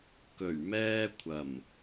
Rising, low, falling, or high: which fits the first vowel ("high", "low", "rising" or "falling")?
low